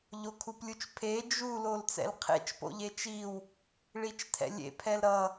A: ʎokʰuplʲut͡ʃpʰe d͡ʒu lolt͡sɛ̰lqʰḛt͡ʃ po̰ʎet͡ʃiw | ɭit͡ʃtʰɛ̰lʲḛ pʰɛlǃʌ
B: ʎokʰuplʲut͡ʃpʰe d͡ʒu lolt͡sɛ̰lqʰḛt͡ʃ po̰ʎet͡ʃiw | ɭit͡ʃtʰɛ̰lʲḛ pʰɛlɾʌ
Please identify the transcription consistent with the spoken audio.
B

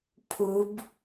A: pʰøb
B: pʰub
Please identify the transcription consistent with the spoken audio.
B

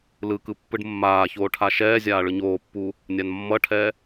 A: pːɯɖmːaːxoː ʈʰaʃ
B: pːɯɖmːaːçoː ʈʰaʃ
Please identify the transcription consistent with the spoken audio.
B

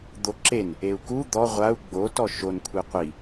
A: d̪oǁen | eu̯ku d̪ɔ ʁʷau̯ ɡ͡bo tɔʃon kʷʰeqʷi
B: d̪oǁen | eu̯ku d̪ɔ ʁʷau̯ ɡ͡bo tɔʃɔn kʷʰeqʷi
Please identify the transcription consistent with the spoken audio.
A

